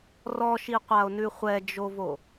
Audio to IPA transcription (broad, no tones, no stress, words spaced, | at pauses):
rɔʃiqʷao̯nʉ χʷɛd͡ʒovo